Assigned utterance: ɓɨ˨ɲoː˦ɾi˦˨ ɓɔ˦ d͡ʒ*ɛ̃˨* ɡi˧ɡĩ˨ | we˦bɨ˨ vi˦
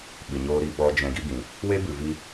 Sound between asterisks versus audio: incorrect: ɛ̃˧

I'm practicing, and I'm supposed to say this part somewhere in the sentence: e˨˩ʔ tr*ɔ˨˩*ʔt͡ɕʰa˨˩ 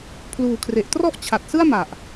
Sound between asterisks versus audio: incorrect: ɔ˥˩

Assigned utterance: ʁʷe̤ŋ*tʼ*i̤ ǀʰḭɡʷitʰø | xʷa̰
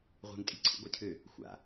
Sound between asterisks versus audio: correct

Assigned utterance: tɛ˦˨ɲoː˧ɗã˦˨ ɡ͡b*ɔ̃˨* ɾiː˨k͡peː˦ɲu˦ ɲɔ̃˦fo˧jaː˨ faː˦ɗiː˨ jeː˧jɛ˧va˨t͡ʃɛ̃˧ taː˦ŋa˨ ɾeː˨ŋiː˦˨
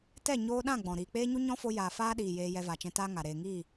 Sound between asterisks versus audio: correct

